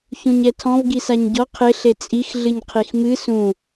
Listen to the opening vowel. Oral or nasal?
nasal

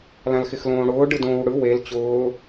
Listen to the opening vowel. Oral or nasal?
nasal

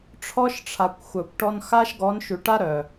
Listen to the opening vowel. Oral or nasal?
oral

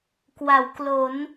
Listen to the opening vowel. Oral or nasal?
oral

